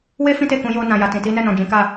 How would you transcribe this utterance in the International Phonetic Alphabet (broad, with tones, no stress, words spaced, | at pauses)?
we˦ fĩ˦te˦˨kũ˨˦ jo˧nã˨ja˨tĩ˨ ti˨˦nɛ˦˨nɔ̃˨ d͡ʒĩ˨˦ka˦˨